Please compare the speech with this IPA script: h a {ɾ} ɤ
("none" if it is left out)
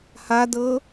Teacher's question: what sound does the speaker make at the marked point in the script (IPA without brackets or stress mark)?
d